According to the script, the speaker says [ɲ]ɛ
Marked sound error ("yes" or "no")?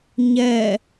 no